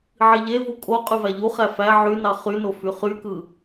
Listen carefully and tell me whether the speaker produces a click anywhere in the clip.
no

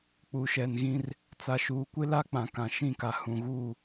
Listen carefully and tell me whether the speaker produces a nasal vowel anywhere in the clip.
yes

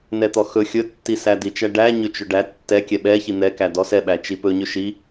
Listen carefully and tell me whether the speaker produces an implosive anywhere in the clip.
yes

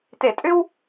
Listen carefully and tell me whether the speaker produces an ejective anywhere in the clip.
yes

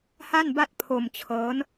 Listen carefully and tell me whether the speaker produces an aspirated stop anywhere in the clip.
yes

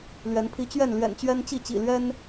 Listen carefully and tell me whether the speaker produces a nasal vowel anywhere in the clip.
no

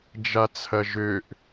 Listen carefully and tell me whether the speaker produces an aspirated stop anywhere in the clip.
yes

